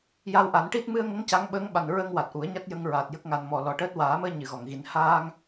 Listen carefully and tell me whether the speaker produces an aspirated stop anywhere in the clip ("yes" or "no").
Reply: no